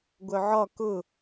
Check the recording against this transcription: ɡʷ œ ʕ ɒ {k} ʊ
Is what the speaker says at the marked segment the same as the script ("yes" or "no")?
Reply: yes